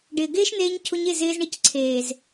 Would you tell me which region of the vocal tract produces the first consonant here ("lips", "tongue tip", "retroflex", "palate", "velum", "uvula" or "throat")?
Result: retroflex